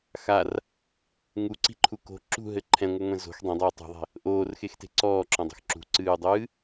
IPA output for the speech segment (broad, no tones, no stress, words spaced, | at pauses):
xar | ŋuǀi̤ǃʰu ko̤ ǁṳɦɘ ǃʰɛ̃ŋʷɨŋʷẽ zo̤x dˤẽdˤoː tˤṳðˤe̤ | ʔoːrxexte̤ ǀɔːǁɔ̃dˤo̤x ǁṳǀɨːdˤɨː